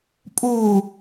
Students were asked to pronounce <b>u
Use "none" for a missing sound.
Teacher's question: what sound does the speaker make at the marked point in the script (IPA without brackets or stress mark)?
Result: pʼ